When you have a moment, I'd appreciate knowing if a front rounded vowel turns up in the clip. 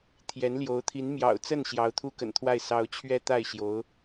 no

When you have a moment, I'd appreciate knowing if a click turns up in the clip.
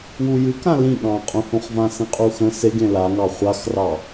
no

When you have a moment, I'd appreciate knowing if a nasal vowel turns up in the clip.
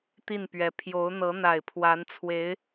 no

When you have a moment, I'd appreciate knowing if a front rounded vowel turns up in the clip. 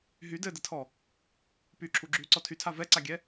yes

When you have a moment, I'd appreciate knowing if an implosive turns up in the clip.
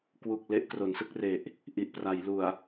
no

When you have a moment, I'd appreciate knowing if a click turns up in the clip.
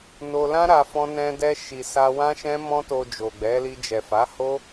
no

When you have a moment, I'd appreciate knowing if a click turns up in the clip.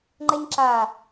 yes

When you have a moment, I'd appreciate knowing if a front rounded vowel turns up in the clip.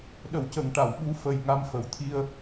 no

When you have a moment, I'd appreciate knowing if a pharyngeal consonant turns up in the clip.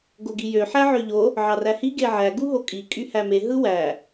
yes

